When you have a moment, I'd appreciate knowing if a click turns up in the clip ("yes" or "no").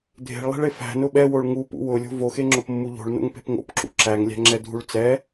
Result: yes